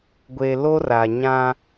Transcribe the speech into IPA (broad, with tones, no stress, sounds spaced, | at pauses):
ɡʷ e˨ l o˦ r a˨ ɲ ã˦